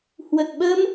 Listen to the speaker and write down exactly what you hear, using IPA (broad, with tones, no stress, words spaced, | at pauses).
hwə˨˩t̚ɓə˧m